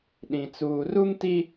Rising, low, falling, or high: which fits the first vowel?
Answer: low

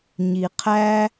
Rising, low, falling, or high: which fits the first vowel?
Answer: low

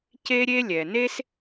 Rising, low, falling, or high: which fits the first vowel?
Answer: high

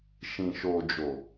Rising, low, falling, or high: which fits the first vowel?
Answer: low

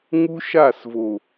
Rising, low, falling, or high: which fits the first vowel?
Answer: high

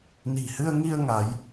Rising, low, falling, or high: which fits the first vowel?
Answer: low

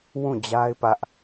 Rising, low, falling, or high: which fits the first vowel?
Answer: falling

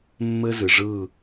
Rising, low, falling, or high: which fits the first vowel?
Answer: high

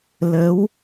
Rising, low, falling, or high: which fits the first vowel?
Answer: rising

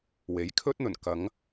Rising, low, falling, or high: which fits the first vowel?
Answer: rising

